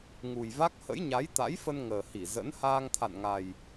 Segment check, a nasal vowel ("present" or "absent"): absent